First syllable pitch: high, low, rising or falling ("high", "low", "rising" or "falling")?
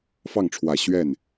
falling